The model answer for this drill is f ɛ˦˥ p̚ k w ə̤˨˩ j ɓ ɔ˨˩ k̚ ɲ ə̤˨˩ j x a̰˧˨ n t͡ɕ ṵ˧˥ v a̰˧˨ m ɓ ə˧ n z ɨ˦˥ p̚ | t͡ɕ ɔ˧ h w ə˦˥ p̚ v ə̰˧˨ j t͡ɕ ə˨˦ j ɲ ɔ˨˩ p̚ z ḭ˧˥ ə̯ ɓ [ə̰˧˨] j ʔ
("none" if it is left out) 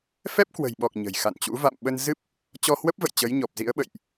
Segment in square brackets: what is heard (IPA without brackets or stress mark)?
ə̰˧˨